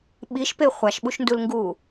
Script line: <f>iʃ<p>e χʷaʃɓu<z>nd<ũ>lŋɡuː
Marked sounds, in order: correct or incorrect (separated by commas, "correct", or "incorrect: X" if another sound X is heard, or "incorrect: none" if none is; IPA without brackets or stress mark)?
incorrect: ɓ, correct, incorrect: ʃ, incorrect: u